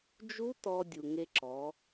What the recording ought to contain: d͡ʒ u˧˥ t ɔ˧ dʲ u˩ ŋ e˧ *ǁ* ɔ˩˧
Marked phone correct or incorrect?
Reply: correct